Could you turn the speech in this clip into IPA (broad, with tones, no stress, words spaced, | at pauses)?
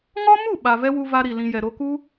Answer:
ŋɔ˦mu˦˨ ɓa˨vɛ˦wu˧ va˦ɾi˨lĩ˧jɛ˨ ɾo˧ku˦